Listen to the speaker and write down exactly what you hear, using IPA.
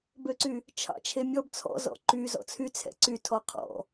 b ø ǀ y | t͡ʃʰ ɑ̰ t͡ʃʰ e mʲ ɔ b t͡sʰ ɔ̰ z ɔ̰ ǃ y z ɔ̰ t͡sʰ y t͡sʰ ɛ̰ ǀ y tʰ ɔ qʰ ɔ̰

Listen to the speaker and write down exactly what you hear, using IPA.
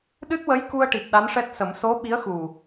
ɗ ɨ˦˥ t̚ w ə˧˥ j k u˧ ə̯ ʈ i˨˩ p̚ ɗ a˧˥ n ʂ ɛ˦˥ t̚ s ə˨˩˦ m s o˧˥ ɓ i˧˥ ə̯ x u˨˩

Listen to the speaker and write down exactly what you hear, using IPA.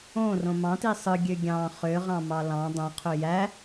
õ r õ m ɑ̃ t i sˤ ɯ ɡʲ ø ɡʲ ɑ̃ χ ø ʁ ɑ̃ m ɑ l ɑ̃ dˤ õ qʰ ø j æ

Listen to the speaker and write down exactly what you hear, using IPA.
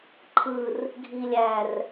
ǃʰ ɯ r | ɡʱ i lʲ æ r

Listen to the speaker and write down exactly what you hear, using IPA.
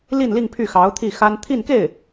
l i˥˧ n l i˥˧ ŋ pʰ y˥˩ x ɑ˧˥ ʊ̯ t̪ʰ i˥˩ x a˥ n t̪ʰ i˥˧ n k e˥˩ ɪ̯

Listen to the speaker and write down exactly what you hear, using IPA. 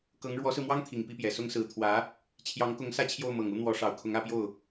k ɤ˧˥ ŋ ɻ w ɔ˧˥ s ɹ̩˧ m w ɑ˥ ŋ t̪ʰ i˨˩ ŋ p i˥˩ p j ɛ˨˩ s ʊ˥ ŋ s ɹ̩˧˥ t̪ʰ w ä˧˥ | t͡ɕʰ j ɑ˧˥ ŋ k ʊ˧˥ ŋ s ä˥˧ t͡ɕʰ j o˥˩ ʊ̯ m ɤ˨˩ ŋ u˥ n̪ w ɔ˧˥ ʂ ɑ˨˩ ʊ̯ kʰ ʊ˧˥ ŋ ä˧˥ p j o˥˩ ʊ̯

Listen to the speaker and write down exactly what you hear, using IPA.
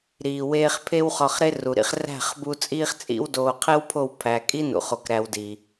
ɾ iː˨ w eː˧ χ pʰ e˦ w χ ɒ˧ χ ɾ e˦ r u˨ ɾ ḭ˧ χ r æ̤˦˨ χ b u˧ t͡sʼ iː˦ χ t͡sʼ ḭ˦ w d oː˧ qʰ e˦ w pʰ o˦˨ w pʰ æ˨ kʼ i˦ n ṵ˧ χ o˧ k ɾ æ˧ w d i˨

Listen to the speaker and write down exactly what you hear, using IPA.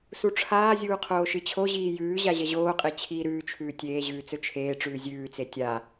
s u ʈ͡ʂʰ aː zʲ uː qʰ oː ʃ ɨ t͡ɕʰ o ʑ iː j ʉː ʑ a ʑ ɐ ʑ oː qʼ e t͡ɕʰ iː ɾ ʉː t͡ʃʰ ʉː tʲ eː ʑ ʉː t͡s ɵ t͡ʃʰ eː ʈ͡ʂ ʉː zʲ ʉː t͡s e tʲ a

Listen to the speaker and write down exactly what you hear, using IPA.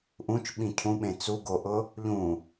ʔ ũ t͡ʃ ɓ ĩ cʰ ũ ɓ ẽ t͡s u ɡ o ʔ ʊ | ʎ ũ

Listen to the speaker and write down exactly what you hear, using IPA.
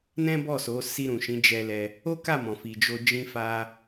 n ɛ̃˦ b ɔ˦˨ s o˨˦ s i˧ ɾ ũ˨ ʃ ĩ˨˦ d͡ʒ ɛ˧ l ɛ˧ | o˦ k a˦˨ m ɔ̃˨ f i˨ d͡ʒ o˧ d͡ʒ ĩ˧ f a˧

